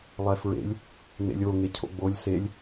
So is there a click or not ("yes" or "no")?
no